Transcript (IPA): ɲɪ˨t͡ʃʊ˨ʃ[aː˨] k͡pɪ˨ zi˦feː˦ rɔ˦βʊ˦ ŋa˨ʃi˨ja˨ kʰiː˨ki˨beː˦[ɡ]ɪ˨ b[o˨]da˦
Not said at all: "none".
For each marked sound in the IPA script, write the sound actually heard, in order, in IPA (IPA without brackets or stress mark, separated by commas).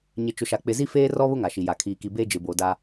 a˨, d͡ʒ, o˨